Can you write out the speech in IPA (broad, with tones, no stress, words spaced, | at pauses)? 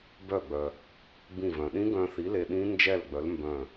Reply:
bœ˧˩ɡ͡bœ˩ | bĩ˧˩vœ̃˩ɗĩ˦˥ɡœ̃˧ θi˨˥le˧ ɗĩ˦˥ nd͡ʒɛ˥˨lɡ͡bœ˨˥l mbœ̃˧˩